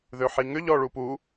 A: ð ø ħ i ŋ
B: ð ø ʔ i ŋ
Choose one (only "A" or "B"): A